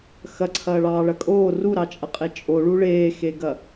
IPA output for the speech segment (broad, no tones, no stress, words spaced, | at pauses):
xɐǀʰɐːɭɑːɭɐ kʼoː ruɾɑt͡ʃʼɐqʼe t͡ʃʼoɭu ɭeːxeɡɐ